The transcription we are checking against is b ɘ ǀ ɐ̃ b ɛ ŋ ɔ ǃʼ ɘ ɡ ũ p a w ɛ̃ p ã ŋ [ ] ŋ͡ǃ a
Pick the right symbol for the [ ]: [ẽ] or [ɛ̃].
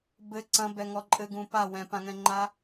ɛ̃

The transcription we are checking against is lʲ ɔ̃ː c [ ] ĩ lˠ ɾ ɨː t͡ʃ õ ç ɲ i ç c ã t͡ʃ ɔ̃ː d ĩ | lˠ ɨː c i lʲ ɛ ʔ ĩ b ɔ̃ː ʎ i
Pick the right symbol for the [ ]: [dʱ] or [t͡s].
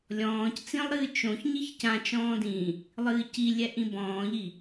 t͡s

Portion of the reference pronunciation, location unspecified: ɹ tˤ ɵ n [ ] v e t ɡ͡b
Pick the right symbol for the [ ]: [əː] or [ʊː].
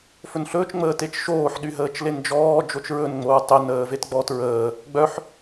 əː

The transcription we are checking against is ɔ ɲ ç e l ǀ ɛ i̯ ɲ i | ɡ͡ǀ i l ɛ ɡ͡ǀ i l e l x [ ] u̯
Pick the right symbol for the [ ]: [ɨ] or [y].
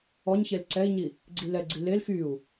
y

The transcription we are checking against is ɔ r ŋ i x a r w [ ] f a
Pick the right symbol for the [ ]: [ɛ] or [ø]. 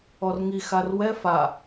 ɛ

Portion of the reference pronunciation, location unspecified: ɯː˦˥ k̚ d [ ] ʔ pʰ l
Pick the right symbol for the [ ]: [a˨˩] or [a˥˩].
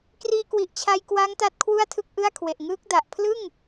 a˨˩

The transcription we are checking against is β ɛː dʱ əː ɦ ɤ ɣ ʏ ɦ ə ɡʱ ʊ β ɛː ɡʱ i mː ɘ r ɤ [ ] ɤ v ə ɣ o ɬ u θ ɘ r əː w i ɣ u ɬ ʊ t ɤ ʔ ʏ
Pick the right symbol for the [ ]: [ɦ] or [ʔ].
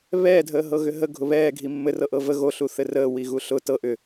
ʔ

